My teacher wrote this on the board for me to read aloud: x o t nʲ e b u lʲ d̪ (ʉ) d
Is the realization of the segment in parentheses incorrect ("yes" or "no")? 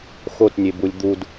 yes